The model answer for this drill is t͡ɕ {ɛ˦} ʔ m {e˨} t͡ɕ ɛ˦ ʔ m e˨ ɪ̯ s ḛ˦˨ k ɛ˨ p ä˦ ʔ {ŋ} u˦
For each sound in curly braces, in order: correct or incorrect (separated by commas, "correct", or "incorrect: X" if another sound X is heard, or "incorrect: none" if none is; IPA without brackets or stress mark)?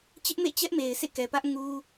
incorrect: ɪ˦, incorrect: ḛ˦˨, correct